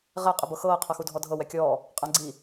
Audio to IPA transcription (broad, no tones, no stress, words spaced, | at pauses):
ʁɛ qʼɪbɤxɤː qʰɤxudʱɔdʱɤ wɛkʲɔː | qʼãɡ͡ǀi